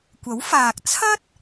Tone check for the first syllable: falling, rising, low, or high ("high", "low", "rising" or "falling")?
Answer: rising